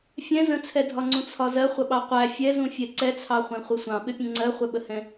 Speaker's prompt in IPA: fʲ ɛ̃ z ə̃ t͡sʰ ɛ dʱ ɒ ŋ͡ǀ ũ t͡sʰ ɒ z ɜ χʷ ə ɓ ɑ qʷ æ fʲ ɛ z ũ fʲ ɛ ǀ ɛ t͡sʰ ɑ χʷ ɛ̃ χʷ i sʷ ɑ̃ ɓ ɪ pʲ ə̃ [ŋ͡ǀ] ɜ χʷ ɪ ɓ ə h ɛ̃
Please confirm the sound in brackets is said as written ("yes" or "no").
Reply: yes